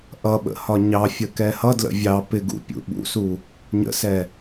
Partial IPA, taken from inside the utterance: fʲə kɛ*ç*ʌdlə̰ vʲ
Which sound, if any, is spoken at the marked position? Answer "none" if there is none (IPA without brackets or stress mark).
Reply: h